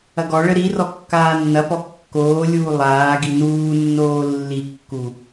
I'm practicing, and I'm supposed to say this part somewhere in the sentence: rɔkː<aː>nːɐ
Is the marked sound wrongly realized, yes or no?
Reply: no